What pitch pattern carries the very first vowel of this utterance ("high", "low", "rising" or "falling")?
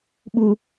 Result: high